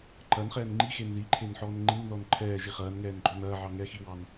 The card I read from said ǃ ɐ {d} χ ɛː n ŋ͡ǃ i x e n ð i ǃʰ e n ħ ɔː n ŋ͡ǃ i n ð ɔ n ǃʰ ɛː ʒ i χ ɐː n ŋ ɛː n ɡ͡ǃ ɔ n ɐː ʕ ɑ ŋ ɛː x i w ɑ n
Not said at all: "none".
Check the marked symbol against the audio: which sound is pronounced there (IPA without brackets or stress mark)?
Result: n